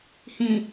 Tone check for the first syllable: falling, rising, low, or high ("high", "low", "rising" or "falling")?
low